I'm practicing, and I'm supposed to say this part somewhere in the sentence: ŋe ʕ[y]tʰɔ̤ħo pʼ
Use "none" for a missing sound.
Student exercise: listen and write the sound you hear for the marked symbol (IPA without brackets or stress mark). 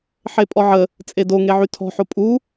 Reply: y